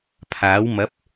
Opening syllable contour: rising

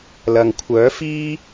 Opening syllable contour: low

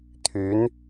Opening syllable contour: rising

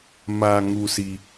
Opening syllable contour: low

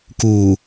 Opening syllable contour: low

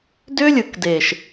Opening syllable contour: high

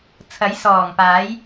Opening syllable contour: rising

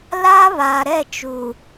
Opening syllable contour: high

